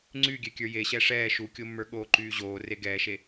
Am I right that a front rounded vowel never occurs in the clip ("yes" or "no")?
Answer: no